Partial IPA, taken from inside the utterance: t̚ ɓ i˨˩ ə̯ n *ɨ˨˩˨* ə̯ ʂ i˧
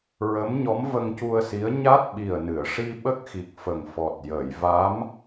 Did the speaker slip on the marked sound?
no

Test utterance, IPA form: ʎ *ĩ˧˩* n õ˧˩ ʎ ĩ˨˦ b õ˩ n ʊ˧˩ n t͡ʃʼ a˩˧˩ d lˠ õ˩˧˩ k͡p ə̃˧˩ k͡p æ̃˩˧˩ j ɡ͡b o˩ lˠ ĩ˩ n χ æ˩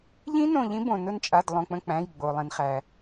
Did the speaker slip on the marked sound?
yes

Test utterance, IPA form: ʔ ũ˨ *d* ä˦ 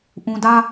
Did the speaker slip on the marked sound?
no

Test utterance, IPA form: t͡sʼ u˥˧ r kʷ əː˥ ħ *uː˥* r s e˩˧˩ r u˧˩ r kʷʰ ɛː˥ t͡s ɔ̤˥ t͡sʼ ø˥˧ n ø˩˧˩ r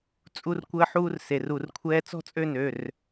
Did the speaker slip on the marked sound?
no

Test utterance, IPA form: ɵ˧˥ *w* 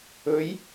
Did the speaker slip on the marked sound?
yes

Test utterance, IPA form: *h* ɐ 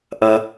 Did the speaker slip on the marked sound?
yes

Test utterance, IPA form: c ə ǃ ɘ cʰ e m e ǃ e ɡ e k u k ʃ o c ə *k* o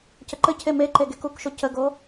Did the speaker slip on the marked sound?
yes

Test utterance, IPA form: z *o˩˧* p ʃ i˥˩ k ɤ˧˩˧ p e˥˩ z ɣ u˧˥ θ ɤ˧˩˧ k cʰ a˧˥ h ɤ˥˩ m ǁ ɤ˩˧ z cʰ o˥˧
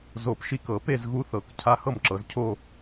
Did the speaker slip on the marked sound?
yes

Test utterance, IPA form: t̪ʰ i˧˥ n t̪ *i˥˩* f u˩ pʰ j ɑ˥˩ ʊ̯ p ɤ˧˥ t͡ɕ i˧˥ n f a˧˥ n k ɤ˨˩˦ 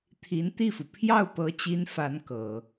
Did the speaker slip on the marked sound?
no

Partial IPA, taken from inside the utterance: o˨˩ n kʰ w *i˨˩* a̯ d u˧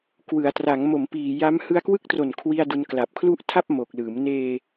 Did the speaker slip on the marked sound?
yes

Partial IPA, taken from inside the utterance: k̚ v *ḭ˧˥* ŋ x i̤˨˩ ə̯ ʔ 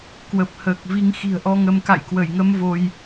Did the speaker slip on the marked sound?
yes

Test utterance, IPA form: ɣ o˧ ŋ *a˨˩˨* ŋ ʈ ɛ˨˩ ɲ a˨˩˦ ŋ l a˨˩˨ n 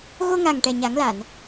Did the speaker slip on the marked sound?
yes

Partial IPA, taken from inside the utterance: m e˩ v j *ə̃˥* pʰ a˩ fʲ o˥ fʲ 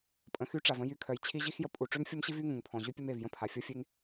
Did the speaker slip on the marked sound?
no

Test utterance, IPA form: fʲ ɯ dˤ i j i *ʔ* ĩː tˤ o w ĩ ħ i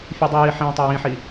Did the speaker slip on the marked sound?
yes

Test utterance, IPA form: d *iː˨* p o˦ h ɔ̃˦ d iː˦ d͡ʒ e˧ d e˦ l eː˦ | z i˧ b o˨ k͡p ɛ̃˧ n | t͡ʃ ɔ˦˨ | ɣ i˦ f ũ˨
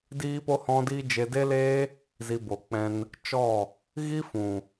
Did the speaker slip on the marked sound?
yes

